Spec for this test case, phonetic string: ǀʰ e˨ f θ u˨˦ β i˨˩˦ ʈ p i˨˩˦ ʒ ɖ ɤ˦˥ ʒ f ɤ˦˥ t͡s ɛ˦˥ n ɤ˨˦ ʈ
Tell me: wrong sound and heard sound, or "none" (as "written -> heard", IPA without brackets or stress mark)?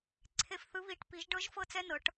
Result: u˨˦ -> ɯ˨˦